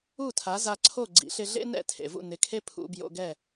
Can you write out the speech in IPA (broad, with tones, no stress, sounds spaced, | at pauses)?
u˥˩ tʰ a˩˥ z a˧ ǀʰ o˥˩ ɡ͡ǀ ḭ˩˥ ɬ ɪ˧ ɮ ḛ˥ n ɛ̰˥˩ tʰ ḛ˩ v ṵ˥˩ n ɪ˩˥ kʰ e˥ pʰ ṵ˧ b j o̰˧ ɡ ɛ˥˩